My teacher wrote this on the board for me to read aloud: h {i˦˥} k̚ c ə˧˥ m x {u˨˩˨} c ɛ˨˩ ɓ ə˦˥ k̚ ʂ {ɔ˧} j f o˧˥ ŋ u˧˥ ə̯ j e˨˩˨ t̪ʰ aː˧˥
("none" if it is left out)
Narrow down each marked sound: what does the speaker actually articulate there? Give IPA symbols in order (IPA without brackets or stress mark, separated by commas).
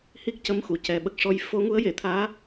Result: i˦˥, u˨˩˨, ɔ˧